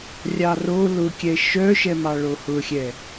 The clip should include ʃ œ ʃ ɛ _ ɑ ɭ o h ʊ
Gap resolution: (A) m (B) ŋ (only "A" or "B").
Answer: A